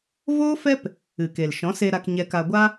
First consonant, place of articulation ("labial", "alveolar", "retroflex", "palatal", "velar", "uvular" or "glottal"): labial